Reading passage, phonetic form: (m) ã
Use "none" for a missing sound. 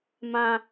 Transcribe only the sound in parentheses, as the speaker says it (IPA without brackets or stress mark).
m